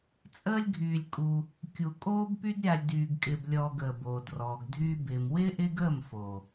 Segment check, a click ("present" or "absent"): absent